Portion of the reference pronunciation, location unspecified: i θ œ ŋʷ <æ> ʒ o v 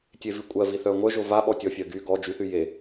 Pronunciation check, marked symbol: incorrect: œ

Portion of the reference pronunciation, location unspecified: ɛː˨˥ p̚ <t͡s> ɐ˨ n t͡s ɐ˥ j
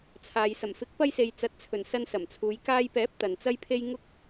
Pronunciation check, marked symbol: incorrect: t̪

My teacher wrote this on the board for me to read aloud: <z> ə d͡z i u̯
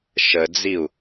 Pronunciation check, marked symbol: incorrect: ʃ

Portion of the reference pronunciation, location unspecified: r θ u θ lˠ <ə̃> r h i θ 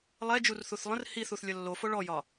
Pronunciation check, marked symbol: correct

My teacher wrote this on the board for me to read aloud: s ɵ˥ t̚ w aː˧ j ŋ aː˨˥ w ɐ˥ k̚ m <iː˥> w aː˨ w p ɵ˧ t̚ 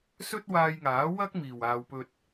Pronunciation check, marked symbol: incorrect: iː˨˩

